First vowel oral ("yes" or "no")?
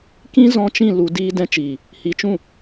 no